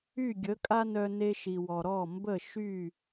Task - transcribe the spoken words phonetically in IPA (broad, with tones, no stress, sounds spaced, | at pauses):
y˥˩ ɡʲ ə˩˥ kʼ a˥ n œ˧ n e˧ ʃ i˩ w ɔ˩ ɾ ɔ˥˩ m b ə˥˩ ʃ y˥˩